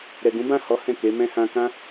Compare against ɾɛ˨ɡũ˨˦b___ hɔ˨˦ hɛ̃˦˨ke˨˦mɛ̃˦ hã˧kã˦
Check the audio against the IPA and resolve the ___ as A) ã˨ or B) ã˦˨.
B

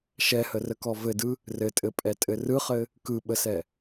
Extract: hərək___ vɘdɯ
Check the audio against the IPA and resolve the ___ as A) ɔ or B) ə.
A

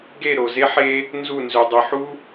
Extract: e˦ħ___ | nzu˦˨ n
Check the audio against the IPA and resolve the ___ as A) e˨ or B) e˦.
B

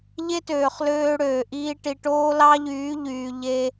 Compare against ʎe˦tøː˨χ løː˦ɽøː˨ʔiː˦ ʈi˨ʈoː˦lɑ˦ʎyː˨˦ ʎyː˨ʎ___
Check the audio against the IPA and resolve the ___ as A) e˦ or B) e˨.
A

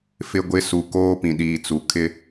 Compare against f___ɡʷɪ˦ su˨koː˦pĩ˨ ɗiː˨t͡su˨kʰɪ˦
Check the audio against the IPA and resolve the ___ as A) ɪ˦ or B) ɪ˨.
A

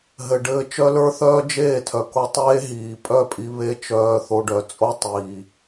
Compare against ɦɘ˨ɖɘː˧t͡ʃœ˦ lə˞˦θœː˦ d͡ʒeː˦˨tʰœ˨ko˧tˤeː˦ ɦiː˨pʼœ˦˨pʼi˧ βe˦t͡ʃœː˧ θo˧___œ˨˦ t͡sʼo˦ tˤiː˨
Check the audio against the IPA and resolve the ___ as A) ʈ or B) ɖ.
B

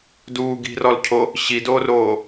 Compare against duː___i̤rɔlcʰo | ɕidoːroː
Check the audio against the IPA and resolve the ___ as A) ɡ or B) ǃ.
A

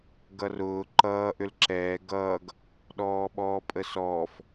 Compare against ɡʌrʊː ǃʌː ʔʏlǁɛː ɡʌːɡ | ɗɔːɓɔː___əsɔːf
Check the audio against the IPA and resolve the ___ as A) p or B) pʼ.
B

